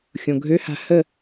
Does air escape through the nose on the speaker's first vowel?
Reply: yes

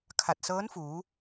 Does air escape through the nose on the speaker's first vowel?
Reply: no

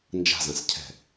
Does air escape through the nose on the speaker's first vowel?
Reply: no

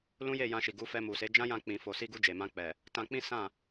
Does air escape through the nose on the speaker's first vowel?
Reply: yes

